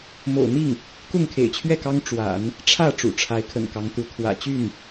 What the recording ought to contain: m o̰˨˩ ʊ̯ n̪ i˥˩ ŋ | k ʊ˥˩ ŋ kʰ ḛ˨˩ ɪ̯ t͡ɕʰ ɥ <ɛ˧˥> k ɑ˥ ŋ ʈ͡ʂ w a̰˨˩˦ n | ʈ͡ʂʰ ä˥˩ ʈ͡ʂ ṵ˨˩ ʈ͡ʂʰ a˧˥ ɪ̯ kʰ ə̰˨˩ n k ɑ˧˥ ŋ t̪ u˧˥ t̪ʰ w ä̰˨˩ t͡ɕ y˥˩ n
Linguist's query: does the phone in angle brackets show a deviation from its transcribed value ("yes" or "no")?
yes